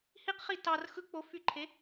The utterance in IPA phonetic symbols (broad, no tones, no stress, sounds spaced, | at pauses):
h i q χ i t ɑ r x ɯ k͡p o f y ǃʰ e